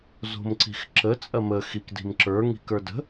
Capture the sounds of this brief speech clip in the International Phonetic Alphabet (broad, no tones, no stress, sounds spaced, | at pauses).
z o̤ m ǀ i̤ x ǁ ə t͡sʼ ɐ m ə x i k d i̤ m ǁ ə˞ ŋ i̤ k ə˞ d ə̤